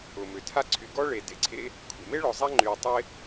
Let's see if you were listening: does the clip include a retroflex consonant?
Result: yes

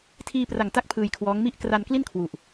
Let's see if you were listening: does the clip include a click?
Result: no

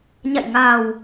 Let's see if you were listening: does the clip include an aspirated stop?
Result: no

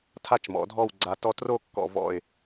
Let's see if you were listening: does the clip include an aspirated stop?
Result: yes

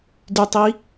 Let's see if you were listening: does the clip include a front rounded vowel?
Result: yes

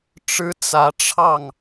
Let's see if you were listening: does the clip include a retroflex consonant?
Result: yes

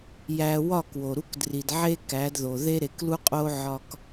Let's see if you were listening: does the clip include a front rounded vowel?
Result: no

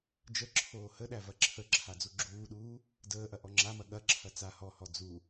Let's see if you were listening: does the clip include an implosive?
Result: yes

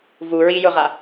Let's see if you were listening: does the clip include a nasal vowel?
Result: no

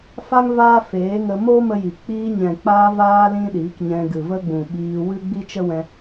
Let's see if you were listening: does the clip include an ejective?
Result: no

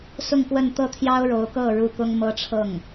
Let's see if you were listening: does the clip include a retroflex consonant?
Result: yes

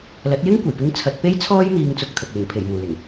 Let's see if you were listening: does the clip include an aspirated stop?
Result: yes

